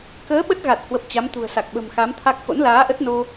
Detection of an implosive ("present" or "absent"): present